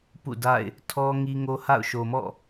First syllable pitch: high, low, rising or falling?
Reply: falling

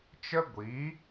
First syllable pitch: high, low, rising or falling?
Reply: high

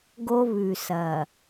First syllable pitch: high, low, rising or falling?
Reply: high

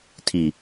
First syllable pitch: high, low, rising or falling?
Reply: low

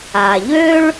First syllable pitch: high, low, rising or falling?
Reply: low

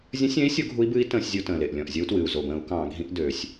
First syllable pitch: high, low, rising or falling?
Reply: rising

